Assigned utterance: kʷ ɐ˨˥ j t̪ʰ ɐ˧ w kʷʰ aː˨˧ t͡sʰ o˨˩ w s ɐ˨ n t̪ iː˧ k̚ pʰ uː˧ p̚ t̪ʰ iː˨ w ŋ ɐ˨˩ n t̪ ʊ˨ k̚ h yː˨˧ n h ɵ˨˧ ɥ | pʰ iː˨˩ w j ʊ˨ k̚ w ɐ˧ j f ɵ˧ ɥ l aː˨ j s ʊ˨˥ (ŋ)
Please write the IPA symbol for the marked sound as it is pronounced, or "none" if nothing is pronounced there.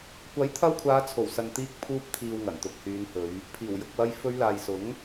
ŋ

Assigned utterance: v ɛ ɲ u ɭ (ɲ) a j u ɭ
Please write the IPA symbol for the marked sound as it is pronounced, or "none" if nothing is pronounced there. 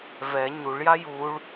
j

